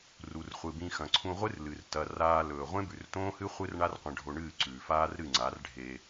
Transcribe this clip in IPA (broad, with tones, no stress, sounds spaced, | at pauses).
r u˨ r χʷ ɨ˨ b ĩ˧ x ɐ̃˨ ǀʰ ũ˧ ʁʷ ɨ˦ r l ɨ˨ r t ɐ˨ r aː˧ l ɵː˨ ʁʷ ẽ˦ b ʉ˨ r t õː˦ h ɨ˦ χʷ ɨ˦ r ɳ a˦ r qʷ ɐ̃˧ ɖʱ o˧ ɳ ɨː˦˨ ǀ ʉː˨ f aː˦ r ɾ ɨ˦˨ ŋ͡ǀ a˨˦ r ɖʱ e˧